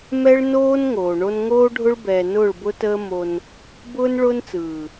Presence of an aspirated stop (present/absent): absent